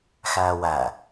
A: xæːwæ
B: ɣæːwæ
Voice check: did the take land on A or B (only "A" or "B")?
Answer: A